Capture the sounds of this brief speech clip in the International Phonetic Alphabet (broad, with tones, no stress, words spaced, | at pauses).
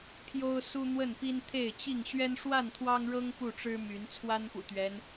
pʰjo˦ʊ̯ su˦n̪wə˥˨npi˦n t̪ʰe˥˨ɪ̯t͡ɕi˥˨ŋ ɕɥɛ˦nʂwa˥˨nt̪ʰwɑ˦ŋɻɤ˦ŋ pu˥˨ʈ͡ʂɻ̩˦my˨˦n t͡sʰwa˦npṵ˨˩t̪ɥɛ˦n